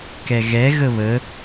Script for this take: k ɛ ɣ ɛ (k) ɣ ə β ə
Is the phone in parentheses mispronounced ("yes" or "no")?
yes